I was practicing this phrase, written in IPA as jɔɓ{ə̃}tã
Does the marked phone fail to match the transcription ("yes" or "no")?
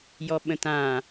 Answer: no